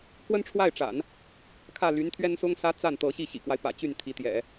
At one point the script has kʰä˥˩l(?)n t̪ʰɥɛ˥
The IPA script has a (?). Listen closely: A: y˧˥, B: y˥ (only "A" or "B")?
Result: A